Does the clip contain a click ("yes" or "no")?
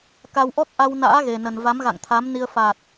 no